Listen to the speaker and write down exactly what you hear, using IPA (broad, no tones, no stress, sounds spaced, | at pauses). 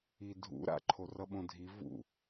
i dʱ ṵ ɾ a̰ ǃʰ o r ʌ ɓ õ dʱ i v ṵ